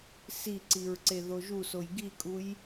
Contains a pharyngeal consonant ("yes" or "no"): no